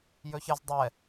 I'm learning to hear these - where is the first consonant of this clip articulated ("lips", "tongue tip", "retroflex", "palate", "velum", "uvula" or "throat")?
palate